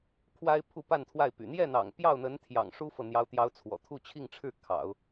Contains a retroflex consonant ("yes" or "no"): yes